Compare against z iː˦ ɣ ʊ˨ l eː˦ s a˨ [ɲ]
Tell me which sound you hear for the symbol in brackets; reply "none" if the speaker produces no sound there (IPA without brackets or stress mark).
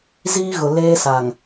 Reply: ŋ